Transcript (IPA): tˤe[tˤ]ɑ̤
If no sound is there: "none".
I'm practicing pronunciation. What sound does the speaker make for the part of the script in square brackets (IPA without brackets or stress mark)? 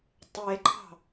ǃ